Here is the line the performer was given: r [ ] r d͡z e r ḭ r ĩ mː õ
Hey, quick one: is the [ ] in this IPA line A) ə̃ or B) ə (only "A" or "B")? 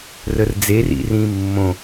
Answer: B